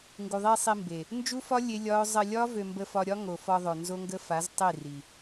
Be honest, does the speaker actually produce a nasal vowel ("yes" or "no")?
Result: no